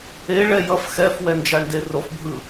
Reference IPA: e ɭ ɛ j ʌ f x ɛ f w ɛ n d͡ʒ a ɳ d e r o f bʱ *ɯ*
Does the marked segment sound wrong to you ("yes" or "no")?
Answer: no